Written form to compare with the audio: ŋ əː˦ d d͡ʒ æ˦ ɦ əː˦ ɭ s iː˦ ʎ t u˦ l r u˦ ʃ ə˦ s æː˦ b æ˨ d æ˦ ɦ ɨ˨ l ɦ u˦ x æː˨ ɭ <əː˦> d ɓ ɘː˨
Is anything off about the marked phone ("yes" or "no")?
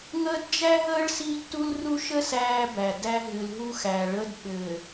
no